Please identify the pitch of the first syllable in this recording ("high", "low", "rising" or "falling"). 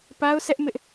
high